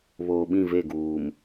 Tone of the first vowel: low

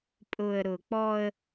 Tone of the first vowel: low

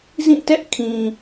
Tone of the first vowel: falling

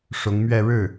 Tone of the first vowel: rising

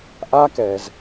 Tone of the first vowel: high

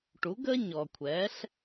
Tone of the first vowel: rising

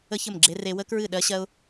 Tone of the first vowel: high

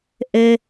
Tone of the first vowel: low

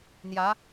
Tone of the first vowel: rising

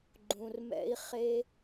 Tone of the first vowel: low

